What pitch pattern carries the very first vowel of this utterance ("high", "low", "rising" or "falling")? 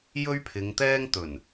high